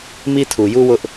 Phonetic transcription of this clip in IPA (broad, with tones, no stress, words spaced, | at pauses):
mi˦tʰu˨ju˦ wʊ˦ʔ